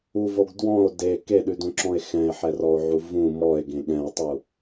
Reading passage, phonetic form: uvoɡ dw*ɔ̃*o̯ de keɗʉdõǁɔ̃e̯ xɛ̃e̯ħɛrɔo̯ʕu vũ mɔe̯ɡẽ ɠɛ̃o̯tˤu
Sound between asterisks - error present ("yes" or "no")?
no